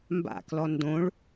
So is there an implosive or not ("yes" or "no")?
no